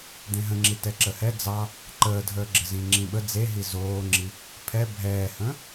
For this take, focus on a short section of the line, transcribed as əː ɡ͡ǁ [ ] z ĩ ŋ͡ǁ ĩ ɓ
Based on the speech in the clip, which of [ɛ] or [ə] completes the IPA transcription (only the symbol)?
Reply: ə